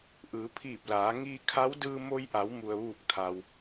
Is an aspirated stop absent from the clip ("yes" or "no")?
no